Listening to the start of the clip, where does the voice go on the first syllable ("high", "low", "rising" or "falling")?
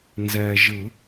low